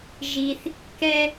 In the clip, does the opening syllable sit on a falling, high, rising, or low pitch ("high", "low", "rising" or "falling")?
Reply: high